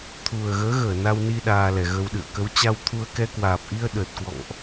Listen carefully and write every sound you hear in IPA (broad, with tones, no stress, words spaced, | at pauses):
t̪ʰu˨˩ə̯ɣəː˨˦ ɣəː˧˩ na˧wni˧ ɗaː˧lɛ˨˩ɣə˧wɗɨ̰˧˨ə̯ kə˨˦w t͡ɕa˧wt̪ʰu˧ə̯ kɛ˧kwaː˨˩p̚ʔi˧ə̯ ɗəː˨˩t̚kwɔ̰˧˨ŋʔ